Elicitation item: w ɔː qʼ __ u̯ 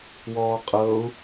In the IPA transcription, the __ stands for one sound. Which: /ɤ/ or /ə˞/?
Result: ɤ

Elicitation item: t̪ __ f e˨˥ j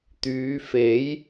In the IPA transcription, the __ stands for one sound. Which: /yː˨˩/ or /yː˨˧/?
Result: yː˨˧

